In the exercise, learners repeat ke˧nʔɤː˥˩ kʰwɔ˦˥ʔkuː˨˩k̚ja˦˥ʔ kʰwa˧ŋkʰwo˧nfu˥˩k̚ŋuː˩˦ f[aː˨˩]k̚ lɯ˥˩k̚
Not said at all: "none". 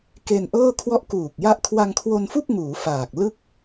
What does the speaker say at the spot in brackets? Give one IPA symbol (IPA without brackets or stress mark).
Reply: aː˨˩